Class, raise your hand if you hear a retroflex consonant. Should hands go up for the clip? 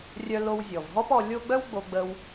no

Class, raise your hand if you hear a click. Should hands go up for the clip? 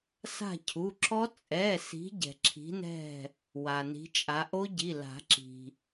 yes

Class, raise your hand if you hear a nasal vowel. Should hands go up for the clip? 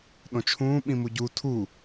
yes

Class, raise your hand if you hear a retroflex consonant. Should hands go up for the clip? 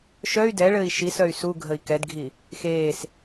yes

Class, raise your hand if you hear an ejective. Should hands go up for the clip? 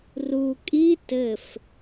yes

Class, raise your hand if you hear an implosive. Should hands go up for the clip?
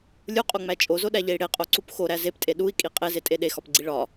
yes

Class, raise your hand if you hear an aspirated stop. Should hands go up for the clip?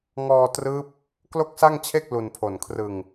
yes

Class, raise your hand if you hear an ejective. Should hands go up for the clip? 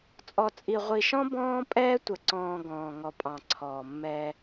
yes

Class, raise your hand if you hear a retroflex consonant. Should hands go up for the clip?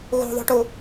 yes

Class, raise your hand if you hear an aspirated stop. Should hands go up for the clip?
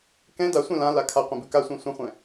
yes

